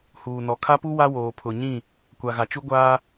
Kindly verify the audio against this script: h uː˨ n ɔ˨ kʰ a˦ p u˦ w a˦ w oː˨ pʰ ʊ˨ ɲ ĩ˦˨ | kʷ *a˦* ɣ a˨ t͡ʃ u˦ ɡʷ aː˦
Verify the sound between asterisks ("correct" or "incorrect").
incorrect